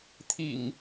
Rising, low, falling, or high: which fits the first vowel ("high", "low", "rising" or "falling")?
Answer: low